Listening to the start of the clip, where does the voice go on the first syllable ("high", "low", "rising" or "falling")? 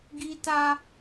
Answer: high